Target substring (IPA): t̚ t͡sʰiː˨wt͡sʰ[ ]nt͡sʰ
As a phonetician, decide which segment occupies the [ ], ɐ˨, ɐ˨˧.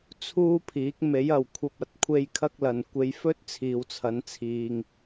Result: ɐ˨˧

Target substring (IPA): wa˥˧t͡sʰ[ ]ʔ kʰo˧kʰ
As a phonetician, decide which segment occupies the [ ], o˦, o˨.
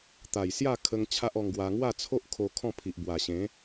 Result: o˦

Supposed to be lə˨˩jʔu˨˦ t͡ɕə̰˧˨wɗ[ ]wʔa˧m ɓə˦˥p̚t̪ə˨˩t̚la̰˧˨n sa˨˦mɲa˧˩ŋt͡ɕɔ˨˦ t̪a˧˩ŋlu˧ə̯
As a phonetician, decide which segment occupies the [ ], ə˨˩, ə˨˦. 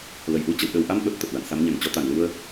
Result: ə˨˩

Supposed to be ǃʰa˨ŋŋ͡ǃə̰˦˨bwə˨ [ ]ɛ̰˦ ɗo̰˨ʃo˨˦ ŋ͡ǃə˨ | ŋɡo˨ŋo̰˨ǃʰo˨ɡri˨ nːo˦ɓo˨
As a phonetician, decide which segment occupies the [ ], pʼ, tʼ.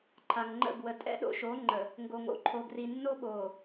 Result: tʼ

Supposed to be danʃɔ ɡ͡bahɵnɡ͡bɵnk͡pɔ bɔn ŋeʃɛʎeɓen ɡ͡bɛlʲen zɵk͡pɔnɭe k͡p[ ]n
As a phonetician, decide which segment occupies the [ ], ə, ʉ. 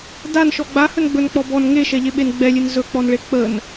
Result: ə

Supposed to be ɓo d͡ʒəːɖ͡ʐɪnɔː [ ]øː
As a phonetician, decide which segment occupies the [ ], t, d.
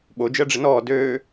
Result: d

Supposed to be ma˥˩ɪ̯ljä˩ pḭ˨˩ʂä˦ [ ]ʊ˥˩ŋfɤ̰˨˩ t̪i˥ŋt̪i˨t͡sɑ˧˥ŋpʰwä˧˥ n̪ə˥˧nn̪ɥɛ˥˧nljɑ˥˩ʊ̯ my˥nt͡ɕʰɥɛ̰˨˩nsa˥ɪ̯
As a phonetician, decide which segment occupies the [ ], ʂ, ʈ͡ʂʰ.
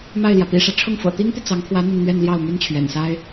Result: ʈ͡ʂʰ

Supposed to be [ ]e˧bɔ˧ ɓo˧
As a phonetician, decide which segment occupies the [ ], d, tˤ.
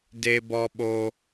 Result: d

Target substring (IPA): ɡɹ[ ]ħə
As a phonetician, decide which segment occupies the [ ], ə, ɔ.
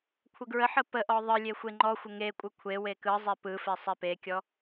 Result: ə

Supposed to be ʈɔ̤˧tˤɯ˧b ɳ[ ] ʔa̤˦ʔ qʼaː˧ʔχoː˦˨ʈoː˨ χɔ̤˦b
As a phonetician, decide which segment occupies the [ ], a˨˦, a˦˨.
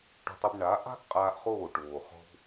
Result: a˨˦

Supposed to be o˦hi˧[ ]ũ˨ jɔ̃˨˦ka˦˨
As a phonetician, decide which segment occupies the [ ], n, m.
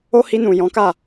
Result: n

